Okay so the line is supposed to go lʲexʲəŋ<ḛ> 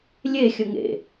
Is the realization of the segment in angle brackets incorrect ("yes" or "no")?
no